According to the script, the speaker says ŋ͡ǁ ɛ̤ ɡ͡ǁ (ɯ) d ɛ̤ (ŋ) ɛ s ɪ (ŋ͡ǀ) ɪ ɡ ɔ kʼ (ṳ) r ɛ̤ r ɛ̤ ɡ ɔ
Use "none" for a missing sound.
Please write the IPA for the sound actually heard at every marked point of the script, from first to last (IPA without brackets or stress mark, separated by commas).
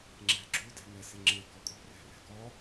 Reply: u, ŋ, ŋ͡ǁ, ṳ